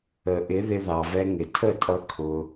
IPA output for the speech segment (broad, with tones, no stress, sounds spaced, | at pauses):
ə˨ ʔ ɪ˨˦ ð ɪ˧ ð ɑ˨ v ɛ˧ ŋ ɪ˨ tʰ ə˦˨ tʼ ʌ˧ kʰ ʊ˧